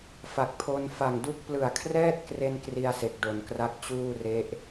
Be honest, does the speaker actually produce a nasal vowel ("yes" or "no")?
no